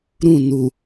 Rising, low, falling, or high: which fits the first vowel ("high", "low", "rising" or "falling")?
falling